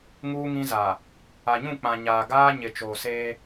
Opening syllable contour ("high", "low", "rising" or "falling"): high